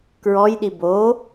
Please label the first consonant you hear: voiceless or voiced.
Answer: voiceless